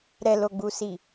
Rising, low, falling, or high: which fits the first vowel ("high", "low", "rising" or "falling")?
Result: low